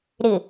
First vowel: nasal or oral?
oral